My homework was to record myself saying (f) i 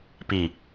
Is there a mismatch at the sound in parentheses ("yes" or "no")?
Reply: yes